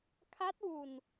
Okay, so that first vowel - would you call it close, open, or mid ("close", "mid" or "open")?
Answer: open